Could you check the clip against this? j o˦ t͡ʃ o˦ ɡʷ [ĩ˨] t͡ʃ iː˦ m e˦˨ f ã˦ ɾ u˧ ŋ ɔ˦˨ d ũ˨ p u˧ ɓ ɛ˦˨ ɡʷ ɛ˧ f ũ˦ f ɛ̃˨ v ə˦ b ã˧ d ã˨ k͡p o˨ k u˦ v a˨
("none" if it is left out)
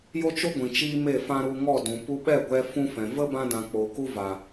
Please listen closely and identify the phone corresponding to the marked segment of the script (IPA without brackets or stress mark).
ĩ˨